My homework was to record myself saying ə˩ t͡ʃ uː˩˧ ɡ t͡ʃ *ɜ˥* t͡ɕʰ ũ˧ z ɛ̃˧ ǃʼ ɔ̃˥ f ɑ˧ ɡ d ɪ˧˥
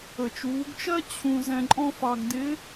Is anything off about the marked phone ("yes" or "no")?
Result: no